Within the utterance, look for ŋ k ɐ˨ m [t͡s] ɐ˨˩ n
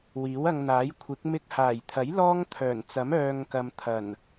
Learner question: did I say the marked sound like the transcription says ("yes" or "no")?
no